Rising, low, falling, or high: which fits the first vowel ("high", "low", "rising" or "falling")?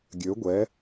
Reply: rising